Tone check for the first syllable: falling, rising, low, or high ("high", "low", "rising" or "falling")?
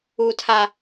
low